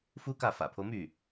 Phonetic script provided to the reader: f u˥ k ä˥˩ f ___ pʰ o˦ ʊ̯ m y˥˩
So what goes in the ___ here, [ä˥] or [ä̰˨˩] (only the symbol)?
ä̰˨˩